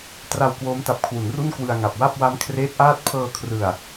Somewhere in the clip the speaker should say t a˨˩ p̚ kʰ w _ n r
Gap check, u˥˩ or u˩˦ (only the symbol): u˩˦